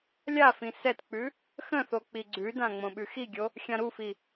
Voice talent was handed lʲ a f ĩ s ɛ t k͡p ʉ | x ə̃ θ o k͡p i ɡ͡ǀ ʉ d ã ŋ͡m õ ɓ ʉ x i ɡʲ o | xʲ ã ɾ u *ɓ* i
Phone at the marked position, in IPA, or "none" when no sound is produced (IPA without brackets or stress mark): f